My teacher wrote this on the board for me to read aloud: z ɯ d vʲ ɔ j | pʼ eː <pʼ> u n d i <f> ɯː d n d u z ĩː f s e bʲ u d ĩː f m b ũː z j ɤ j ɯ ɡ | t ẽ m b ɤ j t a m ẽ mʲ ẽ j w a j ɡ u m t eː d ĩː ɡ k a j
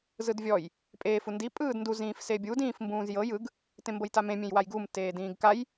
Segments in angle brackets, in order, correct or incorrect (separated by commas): incorrect, incorrect